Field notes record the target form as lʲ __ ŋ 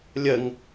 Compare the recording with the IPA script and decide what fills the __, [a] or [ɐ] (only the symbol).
ɐ